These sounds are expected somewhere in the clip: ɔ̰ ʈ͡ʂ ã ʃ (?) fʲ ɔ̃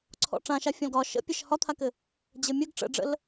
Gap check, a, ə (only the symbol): a